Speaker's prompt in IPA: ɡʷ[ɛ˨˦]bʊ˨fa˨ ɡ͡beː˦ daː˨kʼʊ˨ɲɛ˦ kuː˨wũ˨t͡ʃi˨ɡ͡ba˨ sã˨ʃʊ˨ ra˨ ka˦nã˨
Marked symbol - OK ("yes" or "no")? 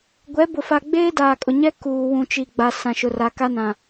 yes